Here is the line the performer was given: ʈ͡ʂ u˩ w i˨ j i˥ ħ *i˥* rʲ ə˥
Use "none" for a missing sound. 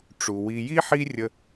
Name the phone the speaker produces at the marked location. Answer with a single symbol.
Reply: i˦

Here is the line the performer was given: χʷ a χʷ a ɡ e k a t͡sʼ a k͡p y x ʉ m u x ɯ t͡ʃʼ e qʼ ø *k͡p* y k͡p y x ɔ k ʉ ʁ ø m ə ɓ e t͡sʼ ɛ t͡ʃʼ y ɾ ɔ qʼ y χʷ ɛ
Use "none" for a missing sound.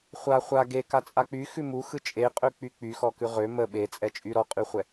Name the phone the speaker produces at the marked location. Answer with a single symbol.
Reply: k͡p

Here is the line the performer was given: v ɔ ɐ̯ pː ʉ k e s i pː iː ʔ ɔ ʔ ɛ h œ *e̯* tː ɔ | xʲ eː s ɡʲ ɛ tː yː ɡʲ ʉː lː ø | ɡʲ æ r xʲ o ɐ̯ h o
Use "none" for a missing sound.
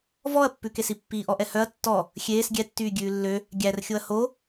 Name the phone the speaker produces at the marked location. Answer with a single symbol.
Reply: ɐ̯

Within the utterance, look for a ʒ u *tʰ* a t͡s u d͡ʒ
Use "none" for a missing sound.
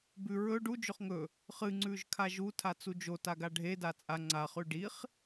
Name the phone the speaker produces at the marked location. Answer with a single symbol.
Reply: tʰ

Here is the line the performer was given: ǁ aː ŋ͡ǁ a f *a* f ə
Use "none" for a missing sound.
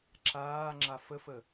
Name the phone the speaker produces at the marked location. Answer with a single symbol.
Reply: ə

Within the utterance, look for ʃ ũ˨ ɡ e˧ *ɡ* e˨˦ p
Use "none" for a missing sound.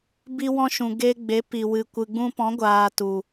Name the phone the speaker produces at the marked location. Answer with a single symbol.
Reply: ɡ͡b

